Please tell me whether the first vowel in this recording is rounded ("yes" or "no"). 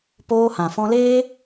yes